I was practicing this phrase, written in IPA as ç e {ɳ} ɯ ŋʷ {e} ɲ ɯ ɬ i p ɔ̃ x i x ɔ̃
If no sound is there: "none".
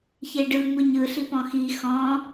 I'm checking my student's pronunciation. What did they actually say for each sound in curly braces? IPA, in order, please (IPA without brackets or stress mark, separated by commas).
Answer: ɖ, i